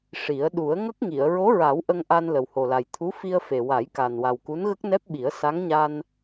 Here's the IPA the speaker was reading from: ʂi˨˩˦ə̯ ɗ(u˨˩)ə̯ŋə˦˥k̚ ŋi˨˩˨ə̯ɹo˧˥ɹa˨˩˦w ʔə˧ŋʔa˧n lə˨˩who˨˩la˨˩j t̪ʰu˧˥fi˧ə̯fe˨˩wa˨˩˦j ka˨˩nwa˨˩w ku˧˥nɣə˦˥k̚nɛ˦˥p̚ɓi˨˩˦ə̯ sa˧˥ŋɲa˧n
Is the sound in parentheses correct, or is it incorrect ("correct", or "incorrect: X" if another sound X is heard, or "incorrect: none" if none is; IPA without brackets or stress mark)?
incorrect: u˨˩˦